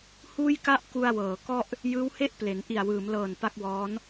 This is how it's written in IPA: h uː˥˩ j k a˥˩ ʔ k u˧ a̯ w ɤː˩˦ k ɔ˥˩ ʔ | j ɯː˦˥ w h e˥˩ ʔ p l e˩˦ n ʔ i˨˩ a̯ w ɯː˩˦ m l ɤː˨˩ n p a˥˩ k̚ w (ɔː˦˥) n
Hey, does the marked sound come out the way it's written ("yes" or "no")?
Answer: yes